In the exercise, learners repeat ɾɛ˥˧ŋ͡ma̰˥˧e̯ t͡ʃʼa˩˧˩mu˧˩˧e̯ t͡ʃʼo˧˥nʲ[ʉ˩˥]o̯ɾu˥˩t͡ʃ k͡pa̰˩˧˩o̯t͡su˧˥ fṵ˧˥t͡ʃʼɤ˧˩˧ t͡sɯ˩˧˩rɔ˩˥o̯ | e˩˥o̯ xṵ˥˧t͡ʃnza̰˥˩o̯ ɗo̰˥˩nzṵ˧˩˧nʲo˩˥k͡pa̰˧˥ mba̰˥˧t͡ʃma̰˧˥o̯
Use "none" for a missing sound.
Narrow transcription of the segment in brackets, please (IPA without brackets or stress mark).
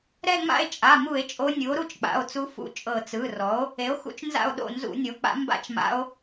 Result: u˩˥